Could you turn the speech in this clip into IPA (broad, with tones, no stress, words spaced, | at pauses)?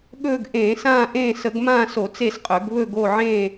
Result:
ɠɵː˦˨ɡʔẽː˧˩˧ sãː˦˨ʔẽː˦˨ sə˧˩˧ɡmãː˦˨so˧˩˧ t͡se˦˨sqʼɵ˧˩˧ɡ βɵ˦˨ɡo˦˨ ʕẽː˦˨